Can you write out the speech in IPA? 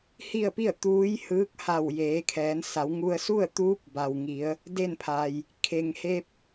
h i˥˨ ə̯ p i˥˨ ə̯ t̪ uː˧˥ j h ɯː˧˥ k̚ h a˧˩ w j eː˩˧ kʰ ɛː˩˧ n s a˩˧ w ŋ u˧ ə̯ s u˥˨ ə̯ t̪ uː˧˥ p̚ b a˩ w ŋ i˩˧ ə̯ | d e˥˨ n pʰ a˩ j | kʰ e˩ ŋ h e˧ p̚

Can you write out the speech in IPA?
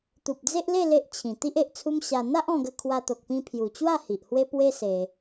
t̪ u˨ p̚ d͡z e˦ ʔ l e˥˧ l e˦ ʔ t͡ɕʰ ĩ˨˩ t̪ i˦ ʔ e˨ ʔ t͡sʰ u˦ m ɕ a˧ n̪ a˦ ʔ ɔ̃˧ ɡ ə˧ kʰ w a˧ t̪ o˨ k̚ p ĩ˧ pʰ j u˨˩ t͡ɕ w a˥˧ h i˨ ʔ h w e˦ p w e˦ s e˧

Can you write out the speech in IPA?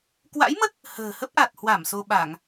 k w a̰˧˥ j m ə˦˥ t̚ | h ə̤ː˨˩ h ə˦˥ p̚ ʔ a˨˩ t̚ h w a˧˩ m s o˧ ɓ a˧˩˨ ŋ

